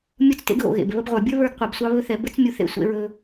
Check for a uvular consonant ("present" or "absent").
present